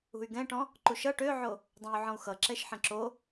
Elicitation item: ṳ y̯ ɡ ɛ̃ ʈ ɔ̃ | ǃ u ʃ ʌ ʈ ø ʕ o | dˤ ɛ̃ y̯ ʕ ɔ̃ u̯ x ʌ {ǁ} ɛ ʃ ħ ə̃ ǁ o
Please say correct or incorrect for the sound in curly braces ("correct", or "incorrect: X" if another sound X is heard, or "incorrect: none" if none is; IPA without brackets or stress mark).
correct